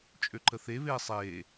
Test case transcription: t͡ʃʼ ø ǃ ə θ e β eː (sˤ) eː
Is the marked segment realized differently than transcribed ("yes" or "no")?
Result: no